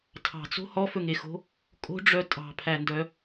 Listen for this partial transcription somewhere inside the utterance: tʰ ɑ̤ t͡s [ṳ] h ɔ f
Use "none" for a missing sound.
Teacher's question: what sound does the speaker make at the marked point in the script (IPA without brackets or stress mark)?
o̤